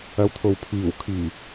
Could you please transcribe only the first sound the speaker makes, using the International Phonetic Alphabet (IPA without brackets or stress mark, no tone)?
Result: ɐ